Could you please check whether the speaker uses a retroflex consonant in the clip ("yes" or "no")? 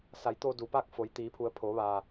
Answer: no